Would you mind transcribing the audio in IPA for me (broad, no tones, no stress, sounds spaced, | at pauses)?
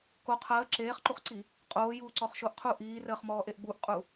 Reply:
k o qʰ əː ǁ eː χ ǃ u χ ǀ i | qʼ oː j uː ǀ ɔ χ ʃ o ʔ qʰ u ʔ iː r əː χ m ɔː ʔ e ʔ ɡ͡b u ʔ qʼ u